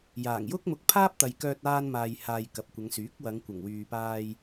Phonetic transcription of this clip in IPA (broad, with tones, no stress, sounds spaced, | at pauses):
j aː˨˩ ŋ j ʊ˥ k̚ m ʊ˧ k̚ pʰ aː˥ p̚ t̪ ɐ˨ j k œː˧ t̚ aː˧ n m aː˨ j h aː˨ j k ɐ˨ p̚ kʷ ɐ˨˧ ŋ s yː˨˥ k̚ w ɐ˨˧ ŋ kʷ ɐ˨˩ ŋ w yː˨ p aː˧ j